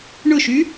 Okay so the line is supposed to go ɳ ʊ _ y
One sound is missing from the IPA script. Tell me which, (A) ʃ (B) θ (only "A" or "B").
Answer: A